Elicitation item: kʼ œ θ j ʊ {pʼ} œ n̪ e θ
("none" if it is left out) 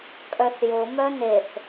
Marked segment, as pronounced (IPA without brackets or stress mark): m